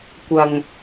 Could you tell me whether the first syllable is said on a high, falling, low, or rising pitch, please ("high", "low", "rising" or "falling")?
low